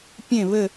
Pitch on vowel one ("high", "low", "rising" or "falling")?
falling